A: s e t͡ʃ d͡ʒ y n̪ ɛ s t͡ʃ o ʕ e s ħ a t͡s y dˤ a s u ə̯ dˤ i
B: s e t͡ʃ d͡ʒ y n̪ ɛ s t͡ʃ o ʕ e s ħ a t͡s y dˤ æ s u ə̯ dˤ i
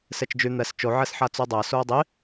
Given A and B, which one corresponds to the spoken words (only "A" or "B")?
B